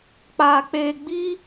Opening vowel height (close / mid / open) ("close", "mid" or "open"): open